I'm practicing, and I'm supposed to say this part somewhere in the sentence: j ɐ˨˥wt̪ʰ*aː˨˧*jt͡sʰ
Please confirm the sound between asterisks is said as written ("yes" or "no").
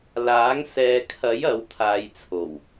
yes